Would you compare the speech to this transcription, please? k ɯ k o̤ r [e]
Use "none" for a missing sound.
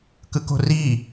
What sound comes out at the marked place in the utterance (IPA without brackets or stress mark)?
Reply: i